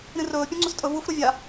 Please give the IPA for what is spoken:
ɾ ĩ r ɵː pʲ ũ ŋ͡ǀ u s tʼ ɵ v u f ɾ u vʲ a

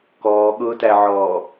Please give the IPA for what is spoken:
k ɔː ɠ ʊː t æ ʕ ɔː

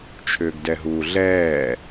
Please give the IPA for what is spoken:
t͡ʃʰ ʏː ɡ d ɛ ɦ uː ɮ ɛː

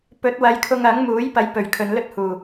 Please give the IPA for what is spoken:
p ɵ˨˥ t̚ w ɐ˨˧ j kʰ ʊ˧ ŋ ɐ˨˥ ŋ m uː˨˥ j p ɐ˨˥ j p ɵ˨˩ ɥ kʰ ɵ˨ n l ɵ˥ t̚ h uː˨˩

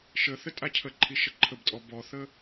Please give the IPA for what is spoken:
ʃ ə θ ə tʼ a cʰ ə ǃʰ i ʃ ə ǃʰ ə b tʼ ɔ b ɔ θ ə

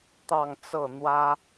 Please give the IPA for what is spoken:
t̪ ɑ˥˧ ŋ t͡s ɤ˥˩ n̪ w ä˥

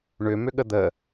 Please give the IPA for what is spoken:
ɳ ʏ m ʏ ɠ ə d̪ ə

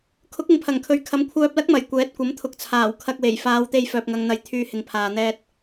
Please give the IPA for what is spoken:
kʰ ʊ˨˥ k̚ ɪ˨ ŋ pʰ ɐ˨˩ ŋ kʰ ɵ˨ ɥ kʰ ɐ˨˥ m kʷʰ œː˧ p̚ l ɐ˥ k̚ m ɐ˨˩ j kʷ ɛː˨˥ t̚ kʷ ɐ˨˥ m t̪ʰ ʊ˨˥ k̚ t͡sʰ aː˨˩ w kʰ ɐ˧ k̚ w e˨˩ j f aː˨˧ w t̪ e˧ j f œː˨ p̚ ŋ ɐ˨ ŋ n̪ ɐ˨˥ j t̪ʰ yː˧ h ɪ˨ ŋ pʰ aː˨ n̪ ɛː˧ t̚

